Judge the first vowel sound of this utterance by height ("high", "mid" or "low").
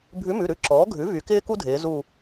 high